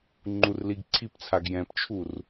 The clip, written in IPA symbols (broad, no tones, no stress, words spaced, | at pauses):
ŋ͡ǃurliɡǀʰipt͡sʰaɡ jɛ̃pt͡ʃʰur